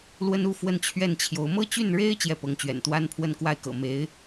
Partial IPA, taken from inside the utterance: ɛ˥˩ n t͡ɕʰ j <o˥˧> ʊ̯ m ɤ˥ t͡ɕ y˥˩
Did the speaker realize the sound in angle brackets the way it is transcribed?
no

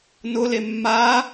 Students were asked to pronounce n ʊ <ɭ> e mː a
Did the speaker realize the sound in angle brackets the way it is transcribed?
no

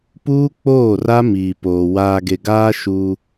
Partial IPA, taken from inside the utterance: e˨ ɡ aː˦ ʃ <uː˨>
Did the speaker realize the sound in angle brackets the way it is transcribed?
no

